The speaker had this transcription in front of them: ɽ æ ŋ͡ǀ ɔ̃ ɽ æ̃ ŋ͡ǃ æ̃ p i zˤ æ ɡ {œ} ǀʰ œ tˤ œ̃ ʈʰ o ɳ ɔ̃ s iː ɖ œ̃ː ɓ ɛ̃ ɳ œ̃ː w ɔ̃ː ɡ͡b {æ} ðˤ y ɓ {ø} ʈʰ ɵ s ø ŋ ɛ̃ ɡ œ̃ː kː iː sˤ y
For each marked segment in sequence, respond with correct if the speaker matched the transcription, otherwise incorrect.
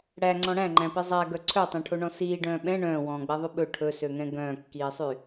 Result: correct, incorrect: ɛ, incorrect: ɵ

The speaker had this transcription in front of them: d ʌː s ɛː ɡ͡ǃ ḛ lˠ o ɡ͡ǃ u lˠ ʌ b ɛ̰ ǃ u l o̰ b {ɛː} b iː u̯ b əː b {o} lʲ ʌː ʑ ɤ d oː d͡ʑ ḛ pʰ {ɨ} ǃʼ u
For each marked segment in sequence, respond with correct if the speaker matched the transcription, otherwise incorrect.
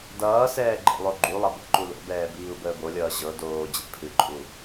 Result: correct, correct, correct

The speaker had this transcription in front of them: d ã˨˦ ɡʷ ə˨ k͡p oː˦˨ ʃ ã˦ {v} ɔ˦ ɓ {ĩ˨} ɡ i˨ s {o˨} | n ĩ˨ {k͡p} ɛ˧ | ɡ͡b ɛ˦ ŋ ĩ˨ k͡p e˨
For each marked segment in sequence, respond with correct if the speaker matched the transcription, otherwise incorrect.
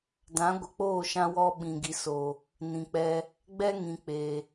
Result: incorrect: w, correct, correct, correct

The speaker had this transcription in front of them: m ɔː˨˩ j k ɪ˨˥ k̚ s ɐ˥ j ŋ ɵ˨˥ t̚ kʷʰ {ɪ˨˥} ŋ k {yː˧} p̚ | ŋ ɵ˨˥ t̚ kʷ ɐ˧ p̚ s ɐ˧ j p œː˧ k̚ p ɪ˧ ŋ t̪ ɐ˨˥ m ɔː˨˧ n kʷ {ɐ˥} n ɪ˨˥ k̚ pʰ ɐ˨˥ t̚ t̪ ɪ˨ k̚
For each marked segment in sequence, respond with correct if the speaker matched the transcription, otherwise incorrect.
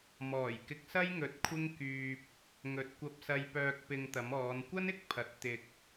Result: incorrect: ɪ˥, correct, correct

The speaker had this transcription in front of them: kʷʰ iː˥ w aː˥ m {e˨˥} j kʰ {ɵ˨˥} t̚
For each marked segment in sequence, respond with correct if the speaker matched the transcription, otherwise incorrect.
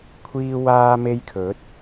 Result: incorrect: e˥, correct

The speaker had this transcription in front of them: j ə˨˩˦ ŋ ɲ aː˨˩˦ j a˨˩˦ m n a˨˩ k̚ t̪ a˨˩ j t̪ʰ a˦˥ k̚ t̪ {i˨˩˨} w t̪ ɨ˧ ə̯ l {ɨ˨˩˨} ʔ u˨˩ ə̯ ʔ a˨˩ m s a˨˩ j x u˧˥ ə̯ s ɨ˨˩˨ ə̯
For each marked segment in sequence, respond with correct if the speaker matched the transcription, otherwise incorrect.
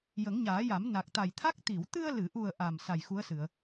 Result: correct, correct

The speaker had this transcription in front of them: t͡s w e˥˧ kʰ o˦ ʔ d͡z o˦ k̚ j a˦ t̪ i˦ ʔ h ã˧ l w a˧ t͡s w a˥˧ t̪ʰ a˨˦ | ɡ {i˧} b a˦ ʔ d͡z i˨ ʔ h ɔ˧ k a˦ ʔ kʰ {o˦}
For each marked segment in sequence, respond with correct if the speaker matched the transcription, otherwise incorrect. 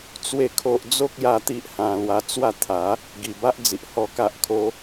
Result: incorrect: i˨˩, correct

